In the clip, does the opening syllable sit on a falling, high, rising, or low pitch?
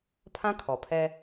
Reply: high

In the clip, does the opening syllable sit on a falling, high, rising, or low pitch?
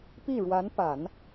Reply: falling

